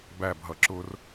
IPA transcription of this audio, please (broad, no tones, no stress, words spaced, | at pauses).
bæbɦʌ ǁʊr